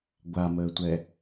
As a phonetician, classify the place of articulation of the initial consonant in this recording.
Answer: velar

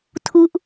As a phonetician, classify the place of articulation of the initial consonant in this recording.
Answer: alveolar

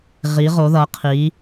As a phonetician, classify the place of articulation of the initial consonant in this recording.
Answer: uvular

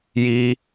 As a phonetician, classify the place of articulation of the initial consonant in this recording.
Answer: palatal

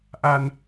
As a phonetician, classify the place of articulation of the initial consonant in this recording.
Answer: glottal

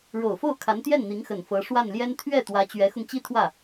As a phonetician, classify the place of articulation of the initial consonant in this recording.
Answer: retroflex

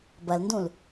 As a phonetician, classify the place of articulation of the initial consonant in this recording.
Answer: labial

